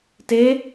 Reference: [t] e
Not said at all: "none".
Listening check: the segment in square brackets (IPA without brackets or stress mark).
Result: t